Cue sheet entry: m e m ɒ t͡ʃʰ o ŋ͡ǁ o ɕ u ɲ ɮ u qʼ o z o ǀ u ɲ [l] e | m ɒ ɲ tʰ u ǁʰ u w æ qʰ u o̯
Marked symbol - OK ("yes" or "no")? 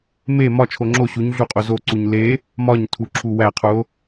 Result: yes